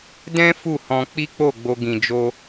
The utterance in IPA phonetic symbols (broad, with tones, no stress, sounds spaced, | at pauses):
d ɛ̃˦ f u˦˨ h ɔ̃˧ k͡p i˦ k͡p o˦˨ ɡ͡b o˧ ɡ ĩ˨ d͡ʒ o˧